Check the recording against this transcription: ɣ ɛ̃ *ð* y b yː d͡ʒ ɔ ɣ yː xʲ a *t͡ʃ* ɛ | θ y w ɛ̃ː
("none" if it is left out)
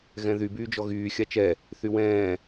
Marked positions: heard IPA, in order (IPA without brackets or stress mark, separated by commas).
ð, t͡ʃ